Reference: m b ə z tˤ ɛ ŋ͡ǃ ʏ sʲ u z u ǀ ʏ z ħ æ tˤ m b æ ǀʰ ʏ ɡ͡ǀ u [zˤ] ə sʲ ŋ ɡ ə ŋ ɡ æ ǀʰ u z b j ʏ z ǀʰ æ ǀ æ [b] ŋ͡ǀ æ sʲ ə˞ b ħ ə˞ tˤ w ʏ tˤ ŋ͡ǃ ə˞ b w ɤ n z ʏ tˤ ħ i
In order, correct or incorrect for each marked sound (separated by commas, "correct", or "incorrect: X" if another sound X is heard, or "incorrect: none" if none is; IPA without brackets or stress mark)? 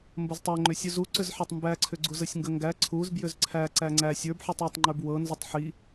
incorrect: z, incorrect: none